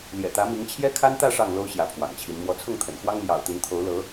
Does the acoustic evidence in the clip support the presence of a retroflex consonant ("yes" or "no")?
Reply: yes